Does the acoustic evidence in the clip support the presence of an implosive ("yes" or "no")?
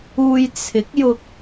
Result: no